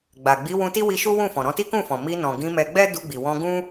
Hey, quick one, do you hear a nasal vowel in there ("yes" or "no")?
yes